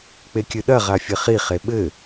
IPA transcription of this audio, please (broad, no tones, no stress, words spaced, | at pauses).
k͡pekʲɨɗɐ ʁafʲɘχi χeɓɘ